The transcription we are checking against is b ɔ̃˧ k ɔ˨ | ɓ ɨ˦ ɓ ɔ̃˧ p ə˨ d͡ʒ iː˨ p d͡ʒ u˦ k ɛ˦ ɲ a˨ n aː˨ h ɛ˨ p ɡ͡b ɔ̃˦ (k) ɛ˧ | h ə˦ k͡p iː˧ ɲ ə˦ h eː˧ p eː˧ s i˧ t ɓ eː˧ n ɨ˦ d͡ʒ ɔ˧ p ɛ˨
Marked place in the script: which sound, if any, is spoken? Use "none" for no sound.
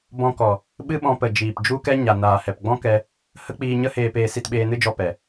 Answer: k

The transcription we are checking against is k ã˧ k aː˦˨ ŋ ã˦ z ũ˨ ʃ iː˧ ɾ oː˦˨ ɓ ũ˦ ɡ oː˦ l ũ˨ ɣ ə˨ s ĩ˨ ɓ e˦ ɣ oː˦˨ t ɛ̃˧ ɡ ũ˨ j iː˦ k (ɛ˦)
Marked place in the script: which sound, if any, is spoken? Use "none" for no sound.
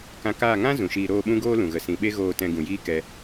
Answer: ɛ˧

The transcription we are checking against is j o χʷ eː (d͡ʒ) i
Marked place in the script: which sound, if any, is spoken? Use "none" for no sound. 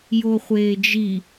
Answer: d͡ʒ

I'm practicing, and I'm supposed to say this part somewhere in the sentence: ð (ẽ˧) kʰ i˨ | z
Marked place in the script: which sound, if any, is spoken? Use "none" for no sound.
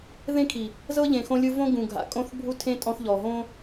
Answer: ẽ˦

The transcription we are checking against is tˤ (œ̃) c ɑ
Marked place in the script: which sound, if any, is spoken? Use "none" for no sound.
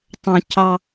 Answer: œ̃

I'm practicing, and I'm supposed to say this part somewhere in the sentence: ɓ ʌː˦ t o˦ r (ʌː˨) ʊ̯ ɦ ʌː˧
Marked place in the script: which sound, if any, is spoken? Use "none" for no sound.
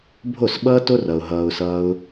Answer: ʌ˨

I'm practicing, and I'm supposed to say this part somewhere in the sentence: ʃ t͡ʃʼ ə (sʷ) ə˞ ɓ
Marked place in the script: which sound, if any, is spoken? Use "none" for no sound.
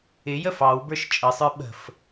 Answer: sˤ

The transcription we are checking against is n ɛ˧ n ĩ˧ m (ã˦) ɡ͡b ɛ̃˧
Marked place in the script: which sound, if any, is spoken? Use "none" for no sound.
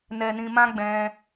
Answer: ã˦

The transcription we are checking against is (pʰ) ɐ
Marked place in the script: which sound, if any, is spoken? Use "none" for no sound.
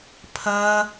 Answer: pʰ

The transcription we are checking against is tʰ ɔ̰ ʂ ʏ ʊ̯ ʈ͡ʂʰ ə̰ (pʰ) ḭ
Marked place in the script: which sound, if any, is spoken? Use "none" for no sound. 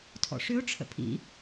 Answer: pʰ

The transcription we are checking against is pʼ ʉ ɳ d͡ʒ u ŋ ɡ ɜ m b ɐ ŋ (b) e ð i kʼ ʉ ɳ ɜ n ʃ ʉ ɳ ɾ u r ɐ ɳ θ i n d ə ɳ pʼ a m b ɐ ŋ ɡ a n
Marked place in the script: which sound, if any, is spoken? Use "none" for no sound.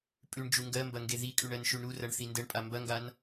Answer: ɡ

